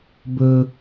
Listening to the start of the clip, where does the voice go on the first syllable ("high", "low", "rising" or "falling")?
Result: high